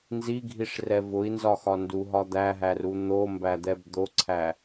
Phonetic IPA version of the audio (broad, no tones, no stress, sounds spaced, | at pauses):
n z i ɡʱ i ʂ r ɛ v ʊ i̯ n z ɒ x ɒ n d u ɦ ɒ d̪ æ ɦ æ r u n̪ o m b æ d̪ ɛ b d̪ o ǀʰ æ